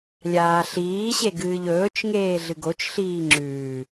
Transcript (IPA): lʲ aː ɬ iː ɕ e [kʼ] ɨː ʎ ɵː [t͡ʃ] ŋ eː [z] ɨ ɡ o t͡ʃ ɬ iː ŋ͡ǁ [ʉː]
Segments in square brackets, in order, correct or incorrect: incorrect, correct, incorrect, correct

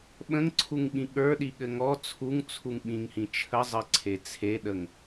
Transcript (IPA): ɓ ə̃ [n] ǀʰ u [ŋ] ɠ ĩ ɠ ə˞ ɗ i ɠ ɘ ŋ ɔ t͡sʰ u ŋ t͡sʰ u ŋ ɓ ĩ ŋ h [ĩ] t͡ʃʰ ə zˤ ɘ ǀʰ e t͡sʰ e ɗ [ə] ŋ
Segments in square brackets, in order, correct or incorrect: incorrect, correct, correct, correct

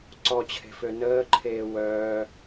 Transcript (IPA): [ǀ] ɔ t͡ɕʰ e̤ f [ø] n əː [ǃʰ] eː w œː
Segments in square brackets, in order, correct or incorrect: correct, correct, correct

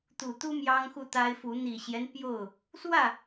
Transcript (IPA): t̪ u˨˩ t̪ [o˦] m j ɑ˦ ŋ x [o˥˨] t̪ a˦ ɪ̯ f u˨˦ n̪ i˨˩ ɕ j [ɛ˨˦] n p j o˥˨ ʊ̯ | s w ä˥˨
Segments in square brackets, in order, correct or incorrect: incorrect, incorrect, incorrect

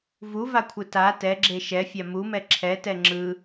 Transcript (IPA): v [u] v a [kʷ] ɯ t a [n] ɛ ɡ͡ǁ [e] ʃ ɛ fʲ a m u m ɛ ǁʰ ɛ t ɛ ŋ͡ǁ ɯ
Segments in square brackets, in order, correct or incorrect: correct, incorrect, incorrect, correct

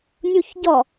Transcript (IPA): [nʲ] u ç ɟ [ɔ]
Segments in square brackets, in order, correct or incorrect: correct, correct

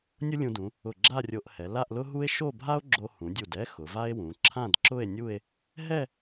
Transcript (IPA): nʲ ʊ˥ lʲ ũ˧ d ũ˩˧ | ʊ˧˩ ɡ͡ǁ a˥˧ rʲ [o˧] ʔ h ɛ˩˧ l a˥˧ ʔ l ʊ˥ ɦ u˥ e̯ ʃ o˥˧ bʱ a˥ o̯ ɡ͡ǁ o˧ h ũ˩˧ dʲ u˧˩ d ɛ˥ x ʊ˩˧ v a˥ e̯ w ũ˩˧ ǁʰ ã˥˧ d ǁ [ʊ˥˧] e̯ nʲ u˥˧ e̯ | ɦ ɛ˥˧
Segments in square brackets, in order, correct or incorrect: correct, correct

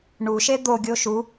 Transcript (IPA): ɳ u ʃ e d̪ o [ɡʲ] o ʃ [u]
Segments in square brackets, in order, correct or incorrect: correct, correct

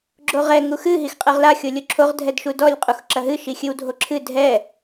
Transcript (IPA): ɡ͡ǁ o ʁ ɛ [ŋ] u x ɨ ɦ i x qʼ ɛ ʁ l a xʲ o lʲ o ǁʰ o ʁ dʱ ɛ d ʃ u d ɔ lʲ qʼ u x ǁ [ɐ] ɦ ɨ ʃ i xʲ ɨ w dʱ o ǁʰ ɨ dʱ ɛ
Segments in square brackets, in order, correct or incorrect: correct, correct

